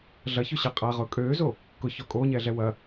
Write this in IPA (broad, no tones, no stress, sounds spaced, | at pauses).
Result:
ɮ ɐ ç ø ɕ a qʼ a ʁ ʊː kʼ øː z o | k ʊ ç ɔ kʼ oː ɲ ɛː ɮ ɛ w ɐ